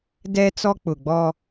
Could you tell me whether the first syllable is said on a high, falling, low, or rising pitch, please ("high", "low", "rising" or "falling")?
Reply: high